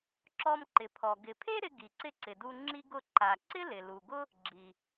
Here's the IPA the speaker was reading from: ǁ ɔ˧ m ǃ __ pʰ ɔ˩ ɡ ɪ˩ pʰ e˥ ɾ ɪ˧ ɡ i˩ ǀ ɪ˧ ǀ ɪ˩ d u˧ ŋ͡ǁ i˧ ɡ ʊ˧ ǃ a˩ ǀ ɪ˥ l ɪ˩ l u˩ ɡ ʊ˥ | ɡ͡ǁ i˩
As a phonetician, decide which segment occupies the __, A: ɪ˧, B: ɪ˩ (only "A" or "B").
B